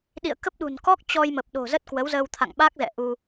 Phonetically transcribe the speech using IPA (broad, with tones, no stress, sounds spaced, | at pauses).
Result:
ɗ ḭ˧˨ ə̯ k ə˦˥ p̚ ɗ ṳ˨˩ n k ɔ˦˥ k̚ t͡ɕ ɔ˧ j m ə˨˩ p̚ ɗ o̤˨˩ z ə˦˥ t̚ k w ə˨˦ w z əː˧ w t̪ʰ a̰˧˨ ŋ ɓ a˦˥ k̚ z ɛ̰˧˨ ʔ u˧